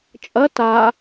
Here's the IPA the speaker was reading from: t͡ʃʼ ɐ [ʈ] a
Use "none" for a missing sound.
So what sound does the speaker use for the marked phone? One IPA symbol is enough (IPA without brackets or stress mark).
t